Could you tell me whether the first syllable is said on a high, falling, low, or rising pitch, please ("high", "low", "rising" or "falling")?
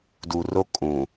low